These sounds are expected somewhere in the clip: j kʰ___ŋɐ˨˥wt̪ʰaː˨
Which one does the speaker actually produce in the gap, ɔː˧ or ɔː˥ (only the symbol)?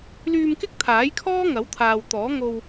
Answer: ɔː˥